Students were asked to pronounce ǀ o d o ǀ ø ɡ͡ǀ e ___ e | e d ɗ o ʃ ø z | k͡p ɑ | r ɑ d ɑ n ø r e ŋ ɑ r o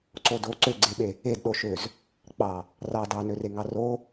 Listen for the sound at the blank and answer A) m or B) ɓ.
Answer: B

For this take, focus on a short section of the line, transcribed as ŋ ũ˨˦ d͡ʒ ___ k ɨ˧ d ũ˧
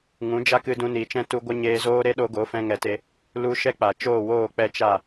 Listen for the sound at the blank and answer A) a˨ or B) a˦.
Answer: B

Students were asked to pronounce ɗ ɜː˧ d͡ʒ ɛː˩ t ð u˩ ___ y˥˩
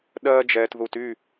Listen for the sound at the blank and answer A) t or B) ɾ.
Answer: A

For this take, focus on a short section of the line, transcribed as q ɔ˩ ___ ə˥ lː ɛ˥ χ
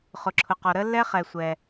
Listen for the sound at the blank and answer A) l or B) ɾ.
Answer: B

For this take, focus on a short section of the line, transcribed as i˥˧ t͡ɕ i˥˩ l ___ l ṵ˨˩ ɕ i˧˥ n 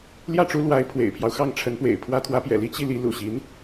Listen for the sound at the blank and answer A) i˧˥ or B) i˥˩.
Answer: A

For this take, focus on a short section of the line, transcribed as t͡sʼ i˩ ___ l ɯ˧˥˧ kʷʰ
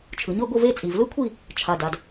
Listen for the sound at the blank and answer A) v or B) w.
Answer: A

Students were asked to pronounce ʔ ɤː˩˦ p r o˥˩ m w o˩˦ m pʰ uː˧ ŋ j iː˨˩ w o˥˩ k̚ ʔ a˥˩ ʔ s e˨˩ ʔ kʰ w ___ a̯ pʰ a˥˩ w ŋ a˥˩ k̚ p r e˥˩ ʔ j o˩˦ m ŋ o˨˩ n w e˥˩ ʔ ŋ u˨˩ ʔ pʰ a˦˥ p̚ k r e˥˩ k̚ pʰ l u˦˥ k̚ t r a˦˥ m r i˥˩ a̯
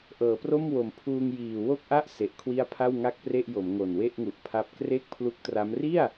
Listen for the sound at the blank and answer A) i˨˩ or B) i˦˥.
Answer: B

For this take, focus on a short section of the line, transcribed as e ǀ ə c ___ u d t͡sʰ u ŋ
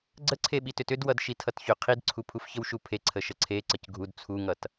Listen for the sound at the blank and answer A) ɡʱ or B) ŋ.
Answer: A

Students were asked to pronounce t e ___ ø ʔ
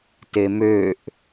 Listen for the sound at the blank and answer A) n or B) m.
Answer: B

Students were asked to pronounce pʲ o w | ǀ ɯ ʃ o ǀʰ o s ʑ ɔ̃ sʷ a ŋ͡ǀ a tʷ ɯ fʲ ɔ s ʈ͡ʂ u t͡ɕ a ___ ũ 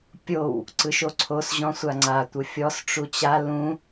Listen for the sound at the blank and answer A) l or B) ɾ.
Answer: A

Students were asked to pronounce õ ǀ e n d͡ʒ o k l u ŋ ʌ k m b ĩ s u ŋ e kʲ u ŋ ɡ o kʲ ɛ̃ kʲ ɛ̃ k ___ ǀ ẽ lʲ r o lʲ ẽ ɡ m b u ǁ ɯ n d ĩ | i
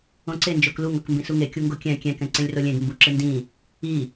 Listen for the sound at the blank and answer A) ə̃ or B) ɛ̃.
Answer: B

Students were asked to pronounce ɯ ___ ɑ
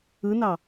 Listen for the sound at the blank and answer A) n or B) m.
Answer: A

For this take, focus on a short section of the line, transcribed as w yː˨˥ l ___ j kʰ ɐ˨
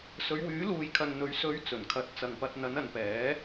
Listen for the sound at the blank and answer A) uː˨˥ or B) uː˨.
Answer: B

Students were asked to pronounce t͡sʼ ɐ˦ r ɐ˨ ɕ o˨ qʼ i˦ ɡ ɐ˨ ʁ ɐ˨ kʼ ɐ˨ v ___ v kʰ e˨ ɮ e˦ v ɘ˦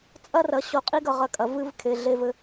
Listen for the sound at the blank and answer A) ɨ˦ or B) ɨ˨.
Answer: A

